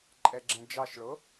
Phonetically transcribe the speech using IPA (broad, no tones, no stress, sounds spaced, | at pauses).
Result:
ǃʼ ɛ ɡ͡ǁ ɛ̃ d͡ʒ ɑ ʃ ɭ o